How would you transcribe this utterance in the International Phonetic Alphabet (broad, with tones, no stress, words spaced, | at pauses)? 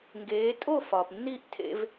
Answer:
ŋɡeː˩˥ tʼo˥˩ fɒː˩pnːiː˥˩ʔ tʰḛ˧v